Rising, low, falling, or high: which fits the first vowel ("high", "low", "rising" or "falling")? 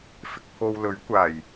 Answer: low